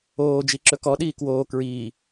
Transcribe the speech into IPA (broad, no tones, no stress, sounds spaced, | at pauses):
oː d͡ʒ i ǁ ɵ k ɔ ɗ iː k w oː k ɹ iː